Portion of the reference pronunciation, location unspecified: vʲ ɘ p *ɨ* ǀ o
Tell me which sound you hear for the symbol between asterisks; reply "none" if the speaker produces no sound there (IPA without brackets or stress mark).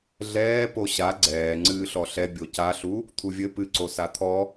ɨ